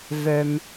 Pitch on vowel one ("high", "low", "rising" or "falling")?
low